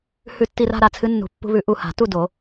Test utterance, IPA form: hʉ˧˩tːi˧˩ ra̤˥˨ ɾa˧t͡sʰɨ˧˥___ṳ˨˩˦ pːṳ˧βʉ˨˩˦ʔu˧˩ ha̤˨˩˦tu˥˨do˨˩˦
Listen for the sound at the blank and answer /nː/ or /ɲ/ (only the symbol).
nː